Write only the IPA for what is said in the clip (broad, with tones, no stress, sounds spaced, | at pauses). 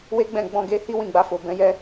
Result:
w e˦ ɡ͡b ɛ̃˦˨ ɡ͡b ɔ̃˧ ɡ e˧ h i˦ w ĩ˦˨ ɡ͡b a˧ f o˨ b ɛ̃˨˦ j ɛ˦